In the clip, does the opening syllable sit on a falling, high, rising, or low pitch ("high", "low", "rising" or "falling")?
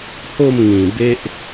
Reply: falling